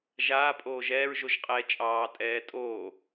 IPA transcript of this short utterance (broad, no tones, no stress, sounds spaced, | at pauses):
ʒ aː pʼ oː ʒ ɛː ɹ ʒ o ʒ qʼ ɛː t͡ʃʼ ɑː tʼ ɛː tʼ oː